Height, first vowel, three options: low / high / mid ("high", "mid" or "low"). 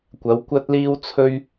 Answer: low